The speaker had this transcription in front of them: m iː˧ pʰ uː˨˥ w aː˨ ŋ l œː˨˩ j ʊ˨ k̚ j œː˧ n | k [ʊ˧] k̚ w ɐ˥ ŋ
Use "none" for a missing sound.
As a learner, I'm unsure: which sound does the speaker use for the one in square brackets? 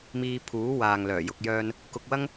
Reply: ʊ˧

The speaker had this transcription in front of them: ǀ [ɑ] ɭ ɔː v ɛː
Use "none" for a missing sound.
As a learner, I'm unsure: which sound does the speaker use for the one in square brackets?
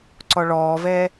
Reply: ɔ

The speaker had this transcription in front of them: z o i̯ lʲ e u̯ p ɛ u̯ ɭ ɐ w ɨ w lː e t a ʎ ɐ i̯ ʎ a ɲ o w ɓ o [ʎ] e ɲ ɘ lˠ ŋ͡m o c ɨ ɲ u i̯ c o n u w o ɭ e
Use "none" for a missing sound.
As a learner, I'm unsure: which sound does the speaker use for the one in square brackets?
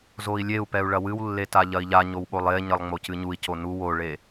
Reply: lˠ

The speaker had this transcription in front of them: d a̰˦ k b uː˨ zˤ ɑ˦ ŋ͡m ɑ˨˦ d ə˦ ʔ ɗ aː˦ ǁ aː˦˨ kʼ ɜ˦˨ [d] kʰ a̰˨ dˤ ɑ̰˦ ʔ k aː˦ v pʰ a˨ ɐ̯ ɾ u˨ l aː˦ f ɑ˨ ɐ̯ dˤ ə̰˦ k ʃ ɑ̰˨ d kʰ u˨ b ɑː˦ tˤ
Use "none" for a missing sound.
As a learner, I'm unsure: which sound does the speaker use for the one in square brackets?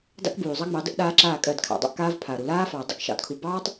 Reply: d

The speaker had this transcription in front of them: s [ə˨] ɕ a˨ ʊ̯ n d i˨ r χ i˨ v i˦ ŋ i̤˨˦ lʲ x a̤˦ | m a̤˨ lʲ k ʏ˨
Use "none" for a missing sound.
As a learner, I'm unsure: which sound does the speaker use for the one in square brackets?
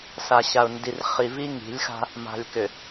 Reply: a˨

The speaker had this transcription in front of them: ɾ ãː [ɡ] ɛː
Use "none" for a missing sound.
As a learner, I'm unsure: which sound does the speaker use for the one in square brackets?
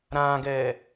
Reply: ɡ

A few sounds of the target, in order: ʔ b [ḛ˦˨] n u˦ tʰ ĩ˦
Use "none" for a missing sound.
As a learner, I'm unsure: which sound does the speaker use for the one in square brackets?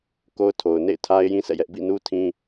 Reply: ḭ˦˨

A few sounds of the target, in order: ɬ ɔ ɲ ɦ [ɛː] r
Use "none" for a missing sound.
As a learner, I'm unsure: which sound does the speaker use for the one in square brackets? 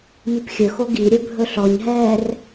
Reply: ɛː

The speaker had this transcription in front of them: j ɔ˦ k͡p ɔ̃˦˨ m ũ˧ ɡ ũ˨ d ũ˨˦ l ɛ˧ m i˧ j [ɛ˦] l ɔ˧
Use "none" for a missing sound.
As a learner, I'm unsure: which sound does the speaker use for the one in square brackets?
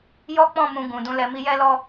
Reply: ɛ˦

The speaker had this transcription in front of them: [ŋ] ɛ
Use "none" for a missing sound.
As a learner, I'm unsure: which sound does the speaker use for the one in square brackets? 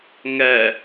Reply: ŋ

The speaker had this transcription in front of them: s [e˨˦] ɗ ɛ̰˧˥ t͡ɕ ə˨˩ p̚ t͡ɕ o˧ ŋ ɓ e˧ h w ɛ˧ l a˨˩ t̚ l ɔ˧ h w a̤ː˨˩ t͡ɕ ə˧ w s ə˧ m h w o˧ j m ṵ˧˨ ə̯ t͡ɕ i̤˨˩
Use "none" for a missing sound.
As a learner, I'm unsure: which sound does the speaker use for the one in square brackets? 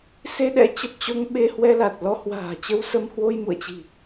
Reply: e˧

